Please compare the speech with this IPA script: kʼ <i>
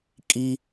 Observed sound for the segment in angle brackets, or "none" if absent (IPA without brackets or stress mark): i